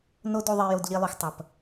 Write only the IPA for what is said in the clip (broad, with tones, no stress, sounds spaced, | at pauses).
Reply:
n o˦ d u˧ ðˤ e˧ j o˧ d ʎ i˧ lˠ u˨ x tˤ ɐ˨ p